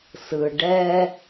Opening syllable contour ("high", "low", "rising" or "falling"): low